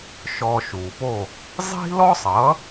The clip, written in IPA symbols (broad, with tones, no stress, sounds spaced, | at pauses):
ʃ ɔ˧ ʃ uː˩ p o˥˩ | zˤ i̤˥ l ɔ˥ sˤ ʌ˩˥